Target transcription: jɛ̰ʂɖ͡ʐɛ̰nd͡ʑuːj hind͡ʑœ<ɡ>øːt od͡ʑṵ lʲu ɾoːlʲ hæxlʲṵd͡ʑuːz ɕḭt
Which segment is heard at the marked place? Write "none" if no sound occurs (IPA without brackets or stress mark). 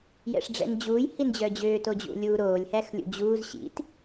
d͡ʑ